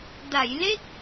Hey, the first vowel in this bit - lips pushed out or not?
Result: no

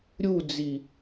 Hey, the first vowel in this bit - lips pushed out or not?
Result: yes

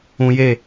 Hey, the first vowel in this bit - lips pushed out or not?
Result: yes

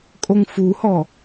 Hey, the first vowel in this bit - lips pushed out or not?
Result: yes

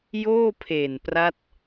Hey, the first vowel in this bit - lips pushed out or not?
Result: yes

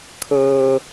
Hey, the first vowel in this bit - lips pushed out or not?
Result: no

